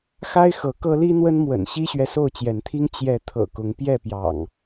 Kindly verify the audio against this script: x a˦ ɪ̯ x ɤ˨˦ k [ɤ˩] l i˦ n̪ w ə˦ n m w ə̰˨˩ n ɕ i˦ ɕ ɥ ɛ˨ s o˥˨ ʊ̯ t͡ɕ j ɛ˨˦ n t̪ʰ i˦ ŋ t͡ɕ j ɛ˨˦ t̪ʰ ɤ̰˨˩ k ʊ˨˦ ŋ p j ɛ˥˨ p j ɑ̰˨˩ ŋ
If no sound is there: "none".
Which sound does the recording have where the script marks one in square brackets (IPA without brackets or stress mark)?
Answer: ɤ˦